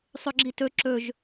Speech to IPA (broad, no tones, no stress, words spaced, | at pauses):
sˤɵɡ͡ǁitɵ ǁɵʒ